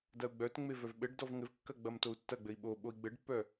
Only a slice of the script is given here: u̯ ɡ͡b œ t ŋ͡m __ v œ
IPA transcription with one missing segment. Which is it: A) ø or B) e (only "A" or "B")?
B